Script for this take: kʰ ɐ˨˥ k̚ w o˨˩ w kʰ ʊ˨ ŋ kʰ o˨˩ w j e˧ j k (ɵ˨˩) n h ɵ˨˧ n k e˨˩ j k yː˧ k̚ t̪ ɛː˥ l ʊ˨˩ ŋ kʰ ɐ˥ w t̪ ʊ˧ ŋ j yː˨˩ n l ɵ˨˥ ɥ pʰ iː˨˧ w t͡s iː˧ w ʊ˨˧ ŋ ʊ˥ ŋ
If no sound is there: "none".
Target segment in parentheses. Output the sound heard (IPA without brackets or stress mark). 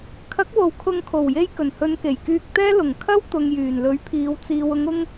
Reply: ɵ˨˩